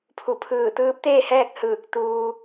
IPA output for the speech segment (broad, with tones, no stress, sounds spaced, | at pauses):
pʰ u˧˩ pʰ ɯː˧˩ t̪ ɯː˧˥ p̚ t̪ eː˥˨ h ɛː˥˨ k̚ h ɯː˧˩ k̚ t̪ uː˧